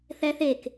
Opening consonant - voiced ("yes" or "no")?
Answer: no